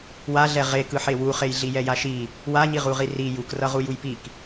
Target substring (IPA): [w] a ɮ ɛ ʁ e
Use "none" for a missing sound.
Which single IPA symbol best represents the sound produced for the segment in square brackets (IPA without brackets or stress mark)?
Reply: w